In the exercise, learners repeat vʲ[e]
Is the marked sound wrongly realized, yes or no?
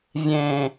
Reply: yes